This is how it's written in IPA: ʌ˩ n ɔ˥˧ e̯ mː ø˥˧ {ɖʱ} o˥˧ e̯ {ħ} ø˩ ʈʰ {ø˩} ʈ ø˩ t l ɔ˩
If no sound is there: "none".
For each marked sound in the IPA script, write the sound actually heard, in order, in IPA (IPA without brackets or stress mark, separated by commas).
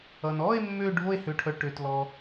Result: ɖʱ, h, œ˩